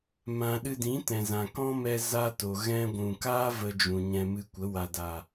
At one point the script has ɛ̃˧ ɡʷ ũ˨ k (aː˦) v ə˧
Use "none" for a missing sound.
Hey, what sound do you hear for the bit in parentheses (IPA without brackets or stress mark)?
aː˦